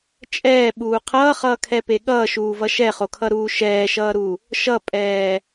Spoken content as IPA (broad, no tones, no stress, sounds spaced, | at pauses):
t͡ʃʼ ɛː ɓ uː qʰ ʌː χ ʌː kʰ ɛ p e ɠ ʌː ʃ uː v ʌ ʃ ɛ χ o kʰ ʌ ɾ uː ʃ ɛː ʃ ʌː ɾ u | ʃ ʌ pʼ ɛː